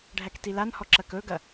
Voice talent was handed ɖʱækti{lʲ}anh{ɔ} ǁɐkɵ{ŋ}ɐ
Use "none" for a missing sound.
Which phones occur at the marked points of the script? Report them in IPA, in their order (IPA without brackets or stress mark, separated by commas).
l, ɔ, ɡ